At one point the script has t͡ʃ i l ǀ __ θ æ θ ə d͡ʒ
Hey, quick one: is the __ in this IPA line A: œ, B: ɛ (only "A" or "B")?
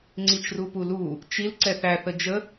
B